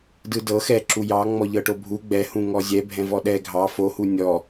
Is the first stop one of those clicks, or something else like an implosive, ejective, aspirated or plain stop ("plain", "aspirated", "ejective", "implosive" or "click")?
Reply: plain